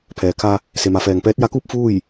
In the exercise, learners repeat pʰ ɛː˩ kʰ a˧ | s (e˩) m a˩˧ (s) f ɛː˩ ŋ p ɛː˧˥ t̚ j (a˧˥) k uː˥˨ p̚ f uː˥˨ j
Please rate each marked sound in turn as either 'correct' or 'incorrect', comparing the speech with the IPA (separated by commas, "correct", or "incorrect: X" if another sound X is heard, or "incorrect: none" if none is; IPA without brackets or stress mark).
correct, incorrect: none, correct